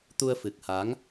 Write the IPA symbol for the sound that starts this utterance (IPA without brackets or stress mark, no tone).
t̪